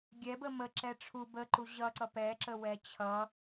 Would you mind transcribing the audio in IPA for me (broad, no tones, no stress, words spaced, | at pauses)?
ɡʲɛbə mə ǁɛʈ͡ʂʰu bəǃu ʑʌǀʌ pɛǁə wɛt͡ɕʰʌ